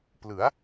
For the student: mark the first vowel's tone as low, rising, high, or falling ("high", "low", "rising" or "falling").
rising